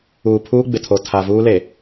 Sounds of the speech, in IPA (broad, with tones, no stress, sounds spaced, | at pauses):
uː˨ pʰ uː˦ ɡ͡b ɪ˨ tʰ o˨ tʰ a˨ v uː˦ l e˨